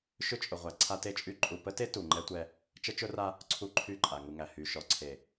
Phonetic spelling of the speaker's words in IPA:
ʃ ʏ˦ t͡ʃʼ ʊ˨ ʁʷ æ˨ ǀʰ a˦ t e˦ t͡ʃʼ y˦ ǃʼ u˨ p ə˦ t e˦ t u˨ ŋ͡ǃ ɛ˦ tʷ ɛ˦ | t͡ʃ ə˦ t͡ʃ ʊ˦ r a˦ | ǀʰ u˦ ǃʰ y˦˨ ǃʼ a˨ ŋ u˨ ŋ æ˨ h y˨ ʃ ɔ˨ ǀʰ e˨

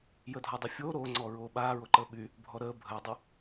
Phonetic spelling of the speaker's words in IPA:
j əː dʱ ɔ dˤ o fʲ oː ɾ oː ŋ͡ǀ ɔː ɹ oː ɓ aː ɹ o ǃ əː ɓ y | bʱ ɔ ɾ əː bʱ əː dˤ y

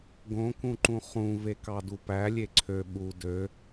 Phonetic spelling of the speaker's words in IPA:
ɡ õ k ũ ǃ ũ χ ũ v e k ɑ d u p æ lʲ e ǀʰ ø ɓ u d ø

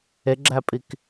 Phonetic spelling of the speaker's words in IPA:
e ɡ͡ǁ æ pʼ i k

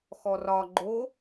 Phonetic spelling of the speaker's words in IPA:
x ɔ r ɒ ɡ͡ǃ o

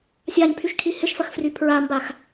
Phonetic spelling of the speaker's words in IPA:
sʲ a ɲ pʰ y ʃ kʰ i h ɪ ʃ f ɐ x f r y pʰ ɹ a m b a x

